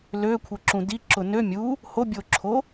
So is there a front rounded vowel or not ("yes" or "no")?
yes